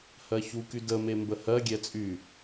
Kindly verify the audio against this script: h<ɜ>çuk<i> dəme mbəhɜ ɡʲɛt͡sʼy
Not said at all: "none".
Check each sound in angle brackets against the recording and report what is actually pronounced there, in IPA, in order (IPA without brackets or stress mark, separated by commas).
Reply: ɜ, y